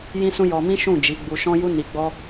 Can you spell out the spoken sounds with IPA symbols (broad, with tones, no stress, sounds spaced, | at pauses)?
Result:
j ĩ˦ s ũ˦ j ɔ˧ m ĩ˦ ʃ ũ˦˨ d͡ʒ i˨˦ ɡ͡b u˧ ʃ ɔ̃˦ j u˦ n i˧ ɡ͡b ɔ˦